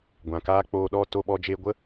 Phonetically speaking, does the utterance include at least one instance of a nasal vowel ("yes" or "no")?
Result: yes